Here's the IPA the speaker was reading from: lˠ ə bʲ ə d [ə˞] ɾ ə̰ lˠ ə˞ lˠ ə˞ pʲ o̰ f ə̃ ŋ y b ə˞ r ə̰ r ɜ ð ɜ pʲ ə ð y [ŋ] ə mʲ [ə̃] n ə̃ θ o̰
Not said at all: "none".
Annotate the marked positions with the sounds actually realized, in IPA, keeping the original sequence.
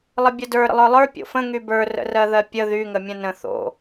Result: ə˞, ŋ, ə̃

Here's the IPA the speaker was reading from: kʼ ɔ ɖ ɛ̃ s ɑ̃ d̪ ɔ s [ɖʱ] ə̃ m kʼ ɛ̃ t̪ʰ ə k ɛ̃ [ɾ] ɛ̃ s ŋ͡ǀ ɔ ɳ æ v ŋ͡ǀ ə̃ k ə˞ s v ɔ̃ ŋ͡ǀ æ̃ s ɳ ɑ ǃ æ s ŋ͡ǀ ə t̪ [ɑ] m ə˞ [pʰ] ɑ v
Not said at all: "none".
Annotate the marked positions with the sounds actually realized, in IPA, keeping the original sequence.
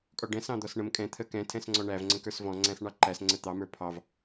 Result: ɳ, tʰ, ɑ, pʰ

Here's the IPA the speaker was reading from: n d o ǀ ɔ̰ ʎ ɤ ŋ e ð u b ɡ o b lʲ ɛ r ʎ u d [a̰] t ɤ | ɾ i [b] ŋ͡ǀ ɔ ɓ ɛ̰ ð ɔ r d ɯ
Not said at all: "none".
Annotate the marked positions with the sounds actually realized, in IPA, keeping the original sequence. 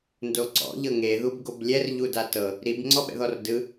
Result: a, b

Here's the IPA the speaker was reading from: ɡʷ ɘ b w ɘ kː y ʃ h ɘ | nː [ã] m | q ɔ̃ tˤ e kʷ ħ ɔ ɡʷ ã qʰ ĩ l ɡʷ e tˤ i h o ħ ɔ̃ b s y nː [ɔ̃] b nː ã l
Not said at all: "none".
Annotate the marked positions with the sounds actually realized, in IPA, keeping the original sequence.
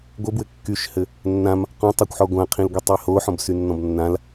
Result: ã, ɔ̃

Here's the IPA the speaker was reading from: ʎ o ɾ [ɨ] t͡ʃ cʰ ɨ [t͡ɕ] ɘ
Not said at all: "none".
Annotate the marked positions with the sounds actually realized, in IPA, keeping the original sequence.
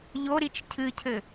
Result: i, cʰ

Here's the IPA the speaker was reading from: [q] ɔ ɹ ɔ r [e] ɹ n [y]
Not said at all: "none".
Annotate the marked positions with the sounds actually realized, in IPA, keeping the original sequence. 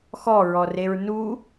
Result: x, e, u

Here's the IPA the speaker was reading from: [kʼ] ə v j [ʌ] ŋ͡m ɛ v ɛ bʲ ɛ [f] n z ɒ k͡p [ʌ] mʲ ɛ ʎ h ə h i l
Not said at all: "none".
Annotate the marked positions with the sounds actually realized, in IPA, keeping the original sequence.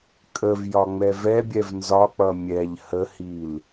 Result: kʼ, ɒ, v, ʌ

